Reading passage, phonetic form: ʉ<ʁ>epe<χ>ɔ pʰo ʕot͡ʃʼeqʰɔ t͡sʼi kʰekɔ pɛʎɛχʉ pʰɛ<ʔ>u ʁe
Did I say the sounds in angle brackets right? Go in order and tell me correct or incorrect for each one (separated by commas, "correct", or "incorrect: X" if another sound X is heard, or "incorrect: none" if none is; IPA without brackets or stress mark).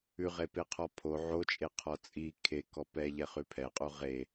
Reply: correct, incorrect: qʰ, incorrect: qʼ